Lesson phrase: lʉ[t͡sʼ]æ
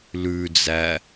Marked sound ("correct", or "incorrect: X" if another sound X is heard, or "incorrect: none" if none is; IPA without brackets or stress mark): incorrect: d͡z